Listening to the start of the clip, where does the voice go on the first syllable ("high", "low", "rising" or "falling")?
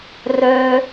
high